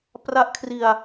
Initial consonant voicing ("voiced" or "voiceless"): voiceless